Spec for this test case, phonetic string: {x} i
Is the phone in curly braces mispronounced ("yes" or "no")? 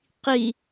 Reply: yes